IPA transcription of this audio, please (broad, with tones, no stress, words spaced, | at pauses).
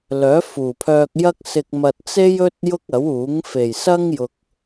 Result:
lœː˨˥ fuː˨˩pʰœː˧k̚jɐ˥k̚ sɪ˨k̚mɐ˨t̚ t͡se˥jɵ˥t̚ jʊ˥k̚ɐ˨˥wuː˨˥ŋ fe˨˩jsɐ˥ŋ jʊ˨k̚